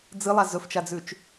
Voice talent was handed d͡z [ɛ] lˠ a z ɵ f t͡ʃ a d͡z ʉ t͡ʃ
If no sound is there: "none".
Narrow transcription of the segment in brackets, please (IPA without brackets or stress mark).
ɨ